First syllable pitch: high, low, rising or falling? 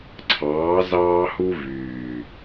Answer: rising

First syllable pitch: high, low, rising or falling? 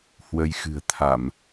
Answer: rising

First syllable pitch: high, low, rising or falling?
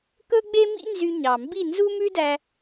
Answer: high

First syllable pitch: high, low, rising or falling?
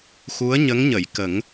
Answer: rising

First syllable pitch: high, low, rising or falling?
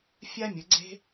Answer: high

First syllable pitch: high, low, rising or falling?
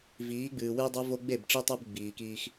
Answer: rising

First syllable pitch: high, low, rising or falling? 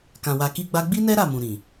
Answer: low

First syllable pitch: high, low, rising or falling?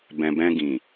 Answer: low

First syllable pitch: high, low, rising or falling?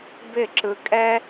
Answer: falling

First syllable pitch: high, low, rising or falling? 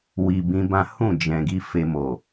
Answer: low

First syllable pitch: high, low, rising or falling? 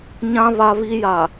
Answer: high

